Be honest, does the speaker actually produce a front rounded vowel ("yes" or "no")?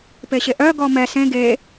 yes